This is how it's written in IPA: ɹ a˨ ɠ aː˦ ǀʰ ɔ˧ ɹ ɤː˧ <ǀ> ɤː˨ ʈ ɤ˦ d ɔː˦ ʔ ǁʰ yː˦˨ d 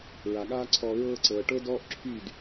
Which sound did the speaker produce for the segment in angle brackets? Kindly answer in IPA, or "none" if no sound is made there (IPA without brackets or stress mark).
ǀ